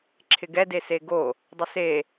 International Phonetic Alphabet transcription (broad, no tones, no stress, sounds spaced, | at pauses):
ǁʰ ɪ ɡ ɛ d e s e ɡ o | dˤ ɪ s e